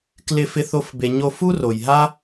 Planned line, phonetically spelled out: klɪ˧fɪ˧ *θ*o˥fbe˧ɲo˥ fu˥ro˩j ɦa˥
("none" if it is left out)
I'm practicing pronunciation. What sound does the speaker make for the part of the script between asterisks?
θ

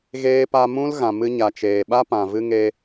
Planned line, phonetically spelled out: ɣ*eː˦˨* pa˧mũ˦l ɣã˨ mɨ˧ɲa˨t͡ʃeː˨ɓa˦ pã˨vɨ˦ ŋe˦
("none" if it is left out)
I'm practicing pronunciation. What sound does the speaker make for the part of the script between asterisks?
eː˦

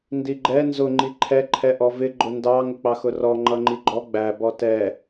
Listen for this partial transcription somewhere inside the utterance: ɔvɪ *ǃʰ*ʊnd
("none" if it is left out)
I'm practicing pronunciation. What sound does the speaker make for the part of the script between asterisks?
ɡ͡ǃ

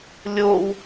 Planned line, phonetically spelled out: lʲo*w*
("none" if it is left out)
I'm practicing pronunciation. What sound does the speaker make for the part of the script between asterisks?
w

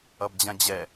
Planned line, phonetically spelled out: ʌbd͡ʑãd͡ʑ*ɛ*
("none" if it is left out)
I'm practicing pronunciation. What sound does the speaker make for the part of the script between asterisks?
ɛ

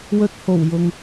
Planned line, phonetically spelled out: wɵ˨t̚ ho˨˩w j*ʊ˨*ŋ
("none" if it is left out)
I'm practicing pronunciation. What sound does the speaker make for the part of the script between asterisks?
ʊ˨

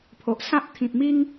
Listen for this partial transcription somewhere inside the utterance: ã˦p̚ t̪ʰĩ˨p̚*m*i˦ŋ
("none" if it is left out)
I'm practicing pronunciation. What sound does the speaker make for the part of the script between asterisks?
m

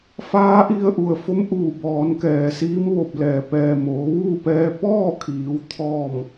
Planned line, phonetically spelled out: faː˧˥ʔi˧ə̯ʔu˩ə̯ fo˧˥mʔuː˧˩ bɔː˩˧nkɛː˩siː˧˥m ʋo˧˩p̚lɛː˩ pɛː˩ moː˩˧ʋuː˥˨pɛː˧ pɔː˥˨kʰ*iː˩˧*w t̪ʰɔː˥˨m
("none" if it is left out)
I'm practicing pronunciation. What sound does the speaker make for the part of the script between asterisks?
iː˩˧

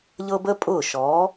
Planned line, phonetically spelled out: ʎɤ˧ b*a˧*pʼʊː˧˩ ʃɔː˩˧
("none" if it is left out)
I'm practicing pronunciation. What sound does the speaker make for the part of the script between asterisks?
ə˧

